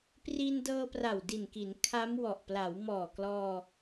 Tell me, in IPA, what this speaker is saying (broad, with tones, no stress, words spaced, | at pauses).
pri˧n dɤː˧pra˨˩wdi˨˩nki˩˦n kʰa˦˥mwɔ˨˩ʔ pla˩˦wmɔː˨˩klɔː˧